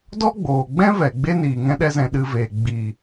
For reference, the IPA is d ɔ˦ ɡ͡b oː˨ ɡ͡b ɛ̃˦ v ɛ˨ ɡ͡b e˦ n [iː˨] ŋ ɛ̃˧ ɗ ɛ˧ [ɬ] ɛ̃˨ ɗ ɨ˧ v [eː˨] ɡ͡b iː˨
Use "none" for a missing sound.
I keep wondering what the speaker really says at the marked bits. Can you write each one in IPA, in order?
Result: iː˨, z, eː˨

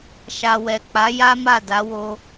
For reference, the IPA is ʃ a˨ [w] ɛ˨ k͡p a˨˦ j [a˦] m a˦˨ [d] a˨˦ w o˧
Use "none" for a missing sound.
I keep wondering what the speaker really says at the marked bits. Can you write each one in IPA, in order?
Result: w, a˦, d

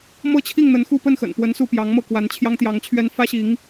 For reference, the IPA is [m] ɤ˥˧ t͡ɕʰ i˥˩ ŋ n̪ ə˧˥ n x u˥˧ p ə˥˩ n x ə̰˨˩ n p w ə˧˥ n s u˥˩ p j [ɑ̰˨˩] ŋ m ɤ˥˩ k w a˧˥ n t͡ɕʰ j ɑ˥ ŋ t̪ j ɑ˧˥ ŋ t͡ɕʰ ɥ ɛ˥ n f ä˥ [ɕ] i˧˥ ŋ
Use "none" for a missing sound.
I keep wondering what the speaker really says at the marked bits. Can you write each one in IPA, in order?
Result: m, ɑ˧˥, ɕ

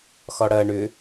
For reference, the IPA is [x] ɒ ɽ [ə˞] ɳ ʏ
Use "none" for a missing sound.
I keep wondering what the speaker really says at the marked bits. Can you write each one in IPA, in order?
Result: x, ɐ

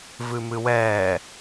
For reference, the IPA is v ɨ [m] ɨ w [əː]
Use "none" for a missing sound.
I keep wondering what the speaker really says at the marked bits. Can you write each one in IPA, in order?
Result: m, ɛː

